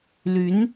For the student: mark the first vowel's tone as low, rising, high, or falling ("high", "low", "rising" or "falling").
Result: rising